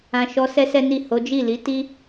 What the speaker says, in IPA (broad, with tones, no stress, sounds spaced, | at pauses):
ã˧ ʃ ɔ˧ s ɛ˦ s ɛ˦ n i˦˨ h o˨˦ d͡ʒ i˦˨ l i˨˦ t i˦